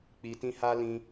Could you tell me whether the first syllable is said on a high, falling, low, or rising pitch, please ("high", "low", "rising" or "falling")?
low